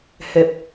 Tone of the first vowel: low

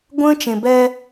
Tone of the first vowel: high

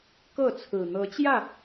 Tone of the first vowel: falling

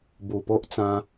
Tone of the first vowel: low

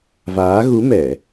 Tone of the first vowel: rising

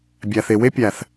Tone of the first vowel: low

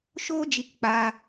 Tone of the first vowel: high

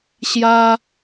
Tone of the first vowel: high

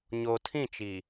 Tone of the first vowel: low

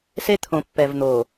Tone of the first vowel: high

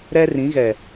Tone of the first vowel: high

